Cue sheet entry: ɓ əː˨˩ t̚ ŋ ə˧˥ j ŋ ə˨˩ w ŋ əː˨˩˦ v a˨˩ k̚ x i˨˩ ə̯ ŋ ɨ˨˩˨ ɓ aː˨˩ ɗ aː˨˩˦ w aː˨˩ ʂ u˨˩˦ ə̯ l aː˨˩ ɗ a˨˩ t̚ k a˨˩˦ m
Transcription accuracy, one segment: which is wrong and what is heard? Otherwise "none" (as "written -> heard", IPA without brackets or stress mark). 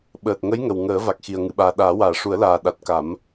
none